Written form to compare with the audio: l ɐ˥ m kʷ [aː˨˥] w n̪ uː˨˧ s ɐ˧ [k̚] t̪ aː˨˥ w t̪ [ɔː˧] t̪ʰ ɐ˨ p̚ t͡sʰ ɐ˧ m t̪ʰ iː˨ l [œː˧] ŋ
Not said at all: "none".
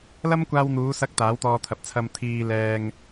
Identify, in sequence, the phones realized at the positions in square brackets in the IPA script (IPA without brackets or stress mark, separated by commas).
aː˧, k̚, ɔː˧, ɛː˧